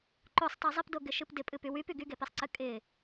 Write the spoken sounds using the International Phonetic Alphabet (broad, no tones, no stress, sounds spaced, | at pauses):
ǃ o sˤ tˤ e zˤ ɪ p d o ɡ ɪ ʃ ɨ p d ɪ pʼ ɨ p y w y p y ɡ y ɡ e p e sˤ ǀ ɨ kʼ ɪ